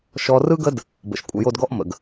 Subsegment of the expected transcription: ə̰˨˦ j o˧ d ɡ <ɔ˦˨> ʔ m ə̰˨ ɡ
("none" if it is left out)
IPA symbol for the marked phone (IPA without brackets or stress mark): ɔ˦